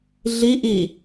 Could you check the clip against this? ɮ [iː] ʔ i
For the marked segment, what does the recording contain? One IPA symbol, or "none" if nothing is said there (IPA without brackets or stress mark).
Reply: i